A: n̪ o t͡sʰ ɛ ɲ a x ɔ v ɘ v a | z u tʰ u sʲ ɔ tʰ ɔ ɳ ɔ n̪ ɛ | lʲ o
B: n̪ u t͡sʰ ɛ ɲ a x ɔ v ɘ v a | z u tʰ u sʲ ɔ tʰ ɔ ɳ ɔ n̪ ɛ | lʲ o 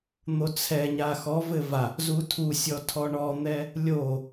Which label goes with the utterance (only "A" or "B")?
A